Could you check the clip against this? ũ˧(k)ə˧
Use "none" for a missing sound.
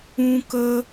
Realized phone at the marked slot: k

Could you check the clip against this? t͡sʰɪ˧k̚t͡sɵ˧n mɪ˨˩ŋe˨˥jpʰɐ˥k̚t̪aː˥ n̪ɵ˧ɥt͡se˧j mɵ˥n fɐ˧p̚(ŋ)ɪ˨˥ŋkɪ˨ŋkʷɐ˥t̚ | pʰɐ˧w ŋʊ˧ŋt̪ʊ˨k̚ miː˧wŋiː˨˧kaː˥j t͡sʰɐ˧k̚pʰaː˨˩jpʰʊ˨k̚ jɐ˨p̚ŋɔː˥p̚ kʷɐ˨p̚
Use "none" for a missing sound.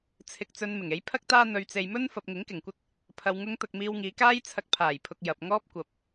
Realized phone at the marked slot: ŋ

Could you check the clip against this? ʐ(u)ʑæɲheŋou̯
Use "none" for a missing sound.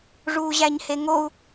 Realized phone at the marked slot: uː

